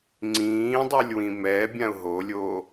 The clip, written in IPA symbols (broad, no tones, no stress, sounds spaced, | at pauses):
ŋ͡ǀ ĩː dˤ u lʲ w ĩ m ɛ bʲ ã ʊ̯ ɦ o lʲ oː